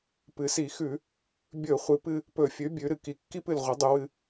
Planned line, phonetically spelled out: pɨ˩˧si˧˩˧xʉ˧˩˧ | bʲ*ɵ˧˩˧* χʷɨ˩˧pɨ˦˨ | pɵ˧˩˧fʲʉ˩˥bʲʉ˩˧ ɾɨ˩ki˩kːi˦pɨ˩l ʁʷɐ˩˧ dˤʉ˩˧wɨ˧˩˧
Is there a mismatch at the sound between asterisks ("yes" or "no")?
no